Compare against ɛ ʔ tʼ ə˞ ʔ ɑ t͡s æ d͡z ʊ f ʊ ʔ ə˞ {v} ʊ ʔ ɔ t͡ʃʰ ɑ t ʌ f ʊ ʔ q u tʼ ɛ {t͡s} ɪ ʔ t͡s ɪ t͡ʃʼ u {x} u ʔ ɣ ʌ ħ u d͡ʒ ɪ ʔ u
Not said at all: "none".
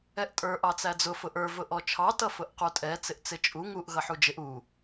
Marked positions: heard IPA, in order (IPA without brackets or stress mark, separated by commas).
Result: v, t͡s, ŋ